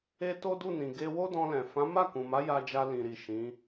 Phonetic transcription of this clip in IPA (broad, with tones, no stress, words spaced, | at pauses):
e˧ to˦du˦˨nĩ˨ ɡe˧wo˦dɔ̃˧lɛ̃˨ fã˨˦ma˦˨kũ˨ma˨˦ ja˧d͡ʒa˧lĩ˨ɾi˨ ʃĩ˨˦